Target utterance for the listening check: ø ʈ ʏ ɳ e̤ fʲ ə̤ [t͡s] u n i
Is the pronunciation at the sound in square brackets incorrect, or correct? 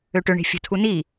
incorrect: tʰ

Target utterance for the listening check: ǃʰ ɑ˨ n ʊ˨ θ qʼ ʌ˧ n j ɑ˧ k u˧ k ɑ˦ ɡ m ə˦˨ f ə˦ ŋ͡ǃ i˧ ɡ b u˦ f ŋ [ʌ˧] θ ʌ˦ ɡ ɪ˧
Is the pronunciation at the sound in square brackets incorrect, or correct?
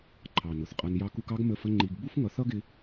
correct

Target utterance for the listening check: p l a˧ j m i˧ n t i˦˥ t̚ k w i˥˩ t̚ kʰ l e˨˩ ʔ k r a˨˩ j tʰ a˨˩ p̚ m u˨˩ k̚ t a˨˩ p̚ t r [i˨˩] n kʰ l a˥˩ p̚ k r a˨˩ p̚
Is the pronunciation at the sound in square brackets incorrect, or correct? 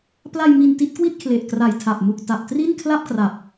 incorrect: i˥˩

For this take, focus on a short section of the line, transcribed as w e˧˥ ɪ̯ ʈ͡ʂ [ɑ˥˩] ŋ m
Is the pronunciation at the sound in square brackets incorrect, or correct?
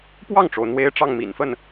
correct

